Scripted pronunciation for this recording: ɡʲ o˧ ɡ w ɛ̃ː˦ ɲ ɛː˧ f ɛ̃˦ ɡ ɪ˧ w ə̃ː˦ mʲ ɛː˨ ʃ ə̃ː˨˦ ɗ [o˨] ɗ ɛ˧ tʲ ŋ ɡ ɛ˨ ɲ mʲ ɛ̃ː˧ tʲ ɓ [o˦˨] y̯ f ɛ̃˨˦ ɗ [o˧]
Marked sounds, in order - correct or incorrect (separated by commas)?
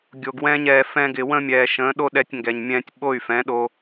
incorrect, correct, correct